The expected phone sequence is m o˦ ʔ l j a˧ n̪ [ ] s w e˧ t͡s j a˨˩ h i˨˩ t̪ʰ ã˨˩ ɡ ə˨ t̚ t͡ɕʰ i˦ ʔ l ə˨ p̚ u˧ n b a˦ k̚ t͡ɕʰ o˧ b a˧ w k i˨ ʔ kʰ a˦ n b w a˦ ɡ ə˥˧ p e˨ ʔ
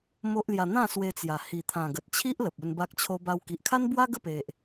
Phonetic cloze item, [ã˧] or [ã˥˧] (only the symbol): ã˥˧